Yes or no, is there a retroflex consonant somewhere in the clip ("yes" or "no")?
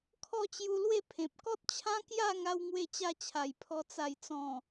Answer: no